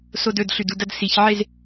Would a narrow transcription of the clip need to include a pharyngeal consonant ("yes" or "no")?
yes